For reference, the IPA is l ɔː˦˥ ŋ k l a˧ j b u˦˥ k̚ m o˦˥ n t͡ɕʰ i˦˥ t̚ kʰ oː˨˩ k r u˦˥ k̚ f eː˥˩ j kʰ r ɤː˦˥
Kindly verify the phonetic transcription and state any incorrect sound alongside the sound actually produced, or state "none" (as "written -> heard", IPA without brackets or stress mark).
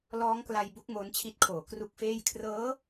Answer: none